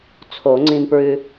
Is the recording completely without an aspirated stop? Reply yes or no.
no